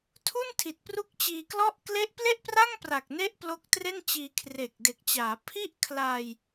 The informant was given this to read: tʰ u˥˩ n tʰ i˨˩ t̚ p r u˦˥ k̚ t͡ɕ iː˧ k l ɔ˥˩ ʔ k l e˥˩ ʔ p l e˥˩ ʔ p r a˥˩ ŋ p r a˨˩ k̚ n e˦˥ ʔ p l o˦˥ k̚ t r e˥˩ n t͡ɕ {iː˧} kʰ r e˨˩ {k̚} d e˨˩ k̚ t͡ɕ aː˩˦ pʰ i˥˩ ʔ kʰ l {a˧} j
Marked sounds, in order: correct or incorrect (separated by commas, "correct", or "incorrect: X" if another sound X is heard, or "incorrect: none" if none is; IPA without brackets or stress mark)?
correct, correct, correct